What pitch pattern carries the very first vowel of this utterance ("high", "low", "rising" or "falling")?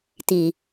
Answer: low